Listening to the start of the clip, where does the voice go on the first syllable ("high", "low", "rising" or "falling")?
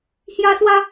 high